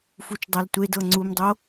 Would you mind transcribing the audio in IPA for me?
f u t͡ʃ dˤ a l tʷ e d ɤ ŋ͡ǀ u m dˤ o

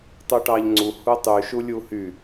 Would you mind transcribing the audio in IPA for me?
tˤ u ʈ ɑ ʎ ŋ͡ǀ u h u tˤ y ʃ u lʲ u h y

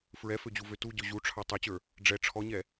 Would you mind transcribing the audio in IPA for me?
f ɹ ɛ f ø d͡ʑ u v ø t u ɟ ø ʑ u ʈ͡ʂʰ ɑ tˤ ø t͡ɕ ə˞ | ɖ͡ʐ ɛ ʈ͡ʂʰ ɔ ɲ ɛ

